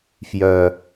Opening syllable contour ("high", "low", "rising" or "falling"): low